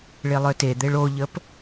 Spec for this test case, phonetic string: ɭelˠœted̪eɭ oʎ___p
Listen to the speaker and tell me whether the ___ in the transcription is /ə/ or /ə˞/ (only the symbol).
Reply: ə